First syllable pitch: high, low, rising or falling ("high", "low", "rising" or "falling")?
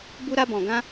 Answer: high